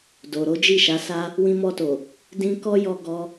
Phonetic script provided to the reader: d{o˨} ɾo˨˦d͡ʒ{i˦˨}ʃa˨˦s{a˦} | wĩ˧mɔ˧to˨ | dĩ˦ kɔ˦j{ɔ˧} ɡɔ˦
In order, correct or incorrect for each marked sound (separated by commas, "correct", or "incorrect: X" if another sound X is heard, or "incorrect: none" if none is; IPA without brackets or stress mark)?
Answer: correct, correct, correct, correct